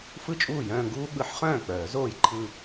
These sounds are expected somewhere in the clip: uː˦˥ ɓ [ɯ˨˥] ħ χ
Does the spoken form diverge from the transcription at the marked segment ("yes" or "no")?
yes